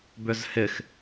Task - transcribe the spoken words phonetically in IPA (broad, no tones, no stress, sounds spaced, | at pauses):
b ʏ z h ɪ x